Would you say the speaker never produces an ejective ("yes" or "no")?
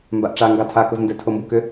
yes